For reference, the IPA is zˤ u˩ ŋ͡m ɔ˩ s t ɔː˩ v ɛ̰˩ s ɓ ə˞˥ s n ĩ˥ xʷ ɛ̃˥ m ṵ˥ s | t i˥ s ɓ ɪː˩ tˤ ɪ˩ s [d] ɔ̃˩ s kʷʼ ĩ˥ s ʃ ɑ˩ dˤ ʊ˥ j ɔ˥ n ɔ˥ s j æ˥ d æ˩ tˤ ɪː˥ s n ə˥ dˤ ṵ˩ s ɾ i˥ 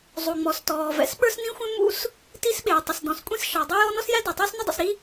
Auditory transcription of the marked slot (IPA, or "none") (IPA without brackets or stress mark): d